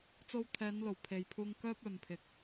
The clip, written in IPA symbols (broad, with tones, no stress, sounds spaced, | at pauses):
t͡s o˧ w t̪ʰ ɛː˨˧ n l o˨˩ w pʰ e˨ j pʰ uː˧ ŋ k œː˥ p̚ œː˨ m pʰ ɪ˨ k̚